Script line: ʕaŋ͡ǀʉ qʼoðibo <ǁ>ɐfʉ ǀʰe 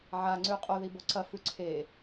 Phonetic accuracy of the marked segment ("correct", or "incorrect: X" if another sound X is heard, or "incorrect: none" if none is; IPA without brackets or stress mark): incorrect: ǀ